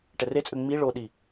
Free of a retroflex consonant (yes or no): no